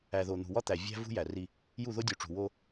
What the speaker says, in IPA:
æ˨ ð o˨ n̪ ṳ˨ w ɒ˦ t̪ æ˨ vʲ æ̤˦ v ṳ˦ j æ˨ r i˦ | j u˦˨ ð o˦ dʲ u˨ ʈ͡ʂ ṳ˨ w o˦

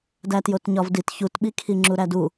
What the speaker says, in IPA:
d æ t j o t ɲ ɒ v d i t ç u t ɓ i kʰ i ŋ͡ǁ u ɾ æ d u

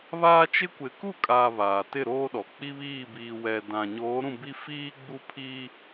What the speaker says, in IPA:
β aː˦ t͡ʃ ɪ˦ kʷ ɪ˨ k u˦˨ kʼ aː˨ β aː˨ t ɪ˦˨ ɾ oː˦ ɗ ɔ˨ k͡p i˦ β iː˦˨ b iː˨ w ɛ˨ d ã˨ ɲ oː˨˦ ɾ ũ˦˨ b i˦ f iː˦ ɡ͡b u˦ pʰ i˦

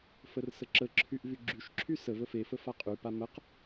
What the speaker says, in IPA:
f ə r s ə ǁ ə ǁʰ y ʔ v y ɡ͡ǁ y ʃ ǁʰ y s ə v ə f e f ə f a qʼ y p a m ə q

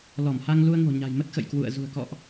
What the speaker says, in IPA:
l ɔ˧˩ m h a˧ ŋ l u˧ ə̯ ŋ o̤˨˩ ɲ a̤˨˩ j m ə˦˥ t̚ x ə̰˧˨ j k w ṵ˧˨ ə̯ z ṳ˨˩ ə̯ k ɔ̰˧˨ ʔ

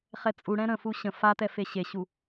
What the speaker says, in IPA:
χ ɛ t͡sʼ u ɽ ɛ̃ ɾ ə̃ f u ɕ ə̃ f a t ɛ f e ɕ e ɕ u

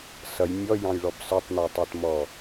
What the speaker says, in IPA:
s ʌ j mʲ ɔ j ɑ̃ j ɭ ɔ b s ə˞ tˤ n ə˞ tˤ ə˞ t m ɔ

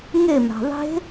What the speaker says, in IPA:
ŋ e m a̤ ðˤ e̤

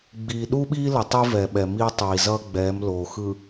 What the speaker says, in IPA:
ɡ͡b iː˨ ɗ u˦ ɓ iː˦ l ʌ˨ tˤ i˦ v ɛ˨ ɓ ɛ˨ m iː˦ tˤ iː˨ z ʌː˦ ɡ͡b ɛː˨˦ m l oː˨ x ɯ˨

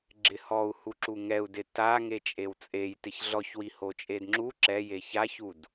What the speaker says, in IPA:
ɡ͡ǁ ɪ h ɔ u̯ h u ǁ u ŋ ɛ u̯ d ɪ t a ŋ e t͡ʃʼ e w t͡sʼ e j t ɪ ç ɮ ɔ ç w i h o t͡ʃʼ e d ŋ͡ǁ u ǁ ɛ j e ç a ç u d

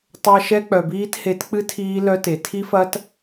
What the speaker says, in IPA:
tˤ ɜ˧ ʃ ɛ˦ k͡p œ˨ b iː˦ t h e˨˦ t k͡p ɨ˦ tʰ iː˦ l œ˦ t e˨ tʰ i˦ f ɐ˦ t

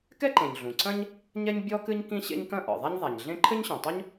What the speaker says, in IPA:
k ɛ˥ ǃ ẽ˩ ɲ ɮ ũ˩ ǀ ɐ̃˥ ɲ | ɲ ɛ˥ ɲ bʲ ɔ˥ k ɨ˥ ɲ k ĩ˥ ɕ ḛ˥ ɲ k ɐ̃˥ ʔ ɔ̰˩ ðˤ a˥ ɲ ðˤ a˩ ɲ ɮ ẽ˥ ǃʰ ɘ˥ ɲ ɕ ɔ̃˩ tˤ o˥ ɲ

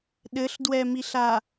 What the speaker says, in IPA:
ɗ ɘ ɬ d w ɛ m i ɬ a

